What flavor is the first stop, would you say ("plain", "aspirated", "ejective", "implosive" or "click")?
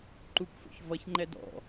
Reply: click